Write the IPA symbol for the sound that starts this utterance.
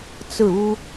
t͡s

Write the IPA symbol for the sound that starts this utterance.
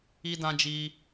i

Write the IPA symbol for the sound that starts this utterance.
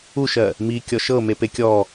u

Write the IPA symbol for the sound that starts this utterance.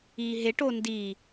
iː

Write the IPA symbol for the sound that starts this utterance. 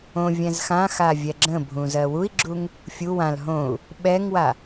õ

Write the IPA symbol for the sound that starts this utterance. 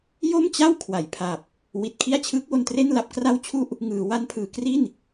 j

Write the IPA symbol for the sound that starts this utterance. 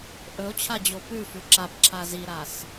ʔ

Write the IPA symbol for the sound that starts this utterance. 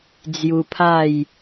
d͡z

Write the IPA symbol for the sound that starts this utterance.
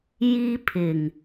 j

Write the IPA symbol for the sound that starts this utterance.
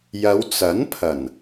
j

